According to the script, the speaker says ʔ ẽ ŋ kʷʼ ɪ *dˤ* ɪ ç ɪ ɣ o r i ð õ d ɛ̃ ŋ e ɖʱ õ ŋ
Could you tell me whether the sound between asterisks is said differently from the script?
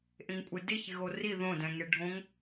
yes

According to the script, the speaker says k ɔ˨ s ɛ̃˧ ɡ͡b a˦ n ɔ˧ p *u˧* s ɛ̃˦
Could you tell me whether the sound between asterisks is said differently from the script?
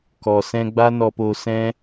yes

